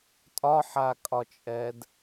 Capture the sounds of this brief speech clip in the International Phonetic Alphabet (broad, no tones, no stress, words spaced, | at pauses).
tʼɒħakʼɒt͡ʃʼɛd